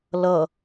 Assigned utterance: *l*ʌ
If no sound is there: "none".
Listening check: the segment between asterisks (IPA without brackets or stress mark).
l